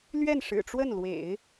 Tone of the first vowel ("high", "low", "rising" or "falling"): falling